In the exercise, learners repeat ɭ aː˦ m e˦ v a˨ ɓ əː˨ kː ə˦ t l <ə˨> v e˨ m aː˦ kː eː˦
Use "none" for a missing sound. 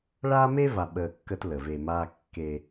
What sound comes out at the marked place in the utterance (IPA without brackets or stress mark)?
ə˨